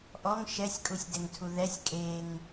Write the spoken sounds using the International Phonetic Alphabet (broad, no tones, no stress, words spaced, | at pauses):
ʔɔŋ ʃɛsʲkʼusʲdɛŋtʰu ðɛsʲ kʼeŋ